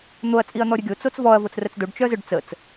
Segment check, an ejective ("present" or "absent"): present